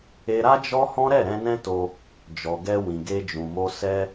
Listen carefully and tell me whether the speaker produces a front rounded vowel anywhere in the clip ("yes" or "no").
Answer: no